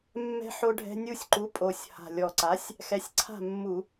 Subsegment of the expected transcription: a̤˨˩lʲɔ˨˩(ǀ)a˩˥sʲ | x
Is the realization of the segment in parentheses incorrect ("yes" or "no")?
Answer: no